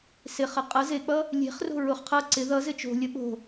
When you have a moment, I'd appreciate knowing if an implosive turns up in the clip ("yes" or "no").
yes